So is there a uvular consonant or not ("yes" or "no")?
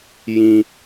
no